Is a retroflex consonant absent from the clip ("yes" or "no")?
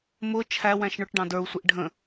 no